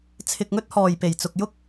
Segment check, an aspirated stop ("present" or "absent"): present